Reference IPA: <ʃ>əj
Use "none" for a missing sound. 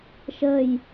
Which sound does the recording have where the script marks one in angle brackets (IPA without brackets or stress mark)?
ʃ